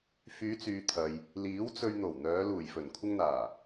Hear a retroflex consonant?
no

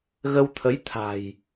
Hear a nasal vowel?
no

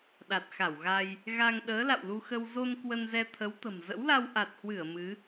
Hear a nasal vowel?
no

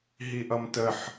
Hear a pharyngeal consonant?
yes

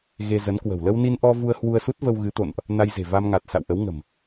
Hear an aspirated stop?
no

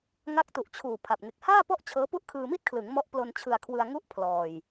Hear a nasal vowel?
no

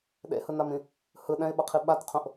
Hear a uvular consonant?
yes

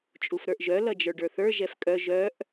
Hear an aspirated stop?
no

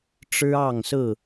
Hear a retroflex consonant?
yes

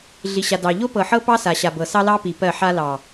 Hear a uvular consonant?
no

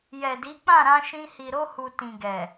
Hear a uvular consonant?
no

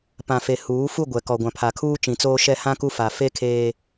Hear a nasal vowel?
yes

